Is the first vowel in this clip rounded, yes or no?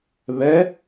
no